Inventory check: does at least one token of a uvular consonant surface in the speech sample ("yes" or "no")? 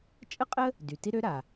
yes